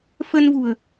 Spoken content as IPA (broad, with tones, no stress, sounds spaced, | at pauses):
f ə˧ n v ṳ˨˩ ə̯